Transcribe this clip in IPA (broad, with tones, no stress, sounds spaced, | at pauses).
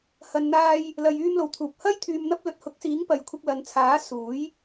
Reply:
h ɐ˨ n n̪ aː˧ j | l ɐ˨ j yː˧ m l o˨˩ w t̪ʰ uː˨ p̚ h ɐ˥ j t̪ʰ yː˧ m n̪ ɐ˥ p̚ l ɵ˨˥ t̚ h ʊ˨˥ k̚ s iː˨˥ ŋ p ɐ˨ j kʷʰ ɪ˧ k̚ l ɐ˨ n t͡sʰ aː˨˥ s uː˨˥ j